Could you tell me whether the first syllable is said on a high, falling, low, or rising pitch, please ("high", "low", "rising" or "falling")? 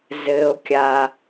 low